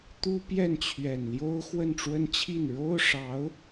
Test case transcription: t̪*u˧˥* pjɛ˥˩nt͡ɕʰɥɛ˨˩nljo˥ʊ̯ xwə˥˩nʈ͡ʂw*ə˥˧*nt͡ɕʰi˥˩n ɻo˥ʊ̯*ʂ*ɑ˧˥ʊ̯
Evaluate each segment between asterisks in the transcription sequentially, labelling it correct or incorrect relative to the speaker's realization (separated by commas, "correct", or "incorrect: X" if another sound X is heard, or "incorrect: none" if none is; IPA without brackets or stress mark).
incorrect: u˥, incorrect: ə˥, correct